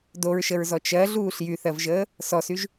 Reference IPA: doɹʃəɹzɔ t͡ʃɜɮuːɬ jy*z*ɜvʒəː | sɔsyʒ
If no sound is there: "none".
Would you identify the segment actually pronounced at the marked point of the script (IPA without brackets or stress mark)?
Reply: θ